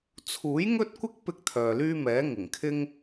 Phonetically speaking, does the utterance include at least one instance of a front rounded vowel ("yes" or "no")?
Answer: yes